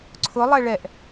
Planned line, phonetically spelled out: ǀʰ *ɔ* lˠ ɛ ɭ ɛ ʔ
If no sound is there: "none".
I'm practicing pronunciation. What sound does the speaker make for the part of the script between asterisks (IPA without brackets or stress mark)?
ʊ